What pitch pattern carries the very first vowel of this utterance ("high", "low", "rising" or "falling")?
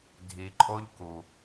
low